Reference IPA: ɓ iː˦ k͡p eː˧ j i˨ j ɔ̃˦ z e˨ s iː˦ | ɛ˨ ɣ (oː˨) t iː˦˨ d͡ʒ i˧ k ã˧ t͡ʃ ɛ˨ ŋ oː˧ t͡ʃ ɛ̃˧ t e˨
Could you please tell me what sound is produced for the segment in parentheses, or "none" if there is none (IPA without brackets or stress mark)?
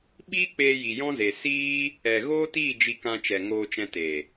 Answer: oː˦